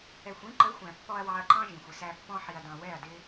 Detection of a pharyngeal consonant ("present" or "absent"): present